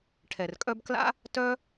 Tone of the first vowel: low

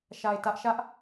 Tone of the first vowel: low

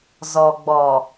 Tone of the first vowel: low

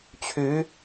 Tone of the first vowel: rising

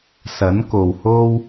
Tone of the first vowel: rising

